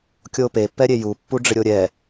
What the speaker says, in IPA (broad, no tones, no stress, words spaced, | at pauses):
kʲope pːɛɾʲeju pːuɖ͡ʐɪɾʲoɾʲɛ